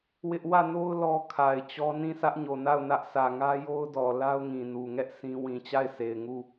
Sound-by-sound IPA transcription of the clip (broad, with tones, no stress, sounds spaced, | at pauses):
w ɪ˦ ʔ w ä˦˨ n o˦ ʊ̯ l ɔ˦ kʰ a˨ ɪ̯ t͡ɕ ɔ˦ n ĩ˦˨ s ä˦ ʔ ɲ o˨ n a˦˨ ʊ̯ n ä˦ ʔ s ä˨ ŋ ä˦ j o˦ ʊ̯ d ɔ˨ l a˦ ʊ̯ ŋ ĩ˨ n u˨ ŋ ɛ˦ ʔ sʰ ĩ˦ w ĩ˨ t͡ɕ a˦˨ ɪ̯ s e˨ ɪ̯ ŋ u˦˨